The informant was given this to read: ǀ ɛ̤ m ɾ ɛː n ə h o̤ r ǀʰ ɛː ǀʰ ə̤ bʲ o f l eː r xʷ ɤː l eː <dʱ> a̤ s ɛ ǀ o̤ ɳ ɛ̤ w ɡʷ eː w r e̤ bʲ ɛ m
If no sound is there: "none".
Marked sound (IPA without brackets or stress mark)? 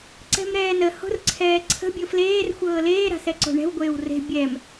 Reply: ɾ